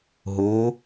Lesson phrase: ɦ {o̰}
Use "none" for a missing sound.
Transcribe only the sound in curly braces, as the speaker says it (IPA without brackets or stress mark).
o